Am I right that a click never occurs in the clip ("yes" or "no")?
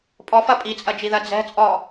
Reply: yes